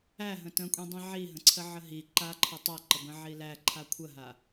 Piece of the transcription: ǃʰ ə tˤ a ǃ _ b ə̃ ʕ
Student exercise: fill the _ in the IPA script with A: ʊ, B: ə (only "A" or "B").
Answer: B